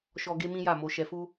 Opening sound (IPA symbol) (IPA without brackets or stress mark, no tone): ʃ